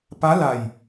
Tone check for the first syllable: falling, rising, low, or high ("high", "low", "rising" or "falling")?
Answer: rising